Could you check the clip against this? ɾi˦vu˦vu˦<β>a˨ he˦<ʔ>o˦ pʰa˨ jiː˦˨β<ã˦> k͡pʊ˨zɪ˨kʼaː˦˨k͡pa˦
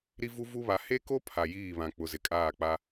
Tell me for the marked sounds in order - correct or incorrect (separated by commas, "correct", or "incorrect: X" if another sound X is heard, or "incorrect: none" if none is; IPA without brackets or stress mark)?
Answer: correct, incorrect: k, incorrect: ã˨